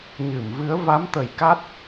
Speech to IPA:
ɲ ɨ˧˩ m v ɨ˨˦ ə̯ v a˨˦ m t̪ ə˧˩ j k a˦˥ t̚

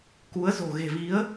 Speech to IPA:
k u˨˦ ə̯ z o̤˨˩ ɣ e̤˨˩ v i˨˦ ə̯

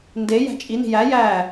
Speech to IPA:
n d e j æ̤ t͡ʃʼ i n i̤ j æ j æ

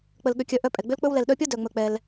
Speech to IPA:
k͡p ə˧ l ɠ ʏ˧ kʲ œ˧ ʔ œ˧ pʼ ɛ˨ ɡ͡b ʏ˦ l k͡p ɵ˦ w l ɛ˨ l ɗ œ˧ pʲ ʌ˦ d œ˧ ŋ͡m ɵ˧ k͡p ɛ˧ l

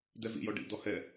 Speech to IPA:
d̪ ɛ v ḭ j ɔ ɖ ḭ d̪ ɔ h ɛ

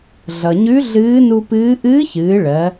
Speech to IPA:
ɮ ʌ˩ ɲ ʉ˧˥ ɮ ɨː˧˥ n u˧ p ɨː˧˥ ʔ ɨː˧˥ ç ɨː˩˧ ɭ ɜ˩˧

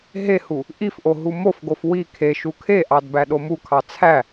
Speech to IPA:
ɦ e h u | ʔ i f ʔ o ɦ u m o f ɡ o f w i kʰ e ʃ u kʰ e ʔ ɑ d b æ ɗ o m u kʰ ɑ t͡sʰ æ

